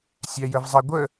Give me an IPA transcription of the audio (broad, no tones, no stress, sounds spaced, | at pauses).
sʲ æ j ə v zˤ ɛ ɡʷ ə